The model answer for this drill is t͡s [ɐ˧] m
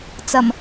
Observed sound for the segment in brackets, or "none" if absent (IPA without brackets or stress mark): ɐ˨˩